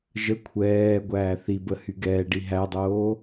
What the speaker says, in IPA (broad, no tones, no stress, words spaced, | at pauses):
ʒə kʷʰɛːɡʷæː θibə hyɡɛːɖi ɦædˤoː